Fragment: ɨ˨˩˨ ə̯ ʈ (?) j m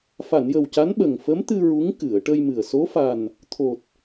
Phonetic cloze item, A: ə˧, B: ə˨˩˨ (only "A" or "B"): A